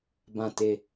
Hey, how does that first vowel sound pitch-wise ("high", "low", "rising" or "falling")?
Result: falling